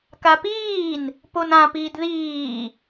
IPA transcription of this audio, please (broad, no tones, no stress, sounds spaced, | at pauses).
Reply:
k a p iː n | p o n ã p iː d ð iː